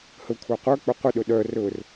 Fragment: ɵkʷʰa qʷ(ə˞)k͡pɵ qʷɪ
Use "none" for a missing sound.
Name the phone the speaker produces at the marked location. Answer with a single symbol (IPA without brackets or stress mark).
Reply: ə˞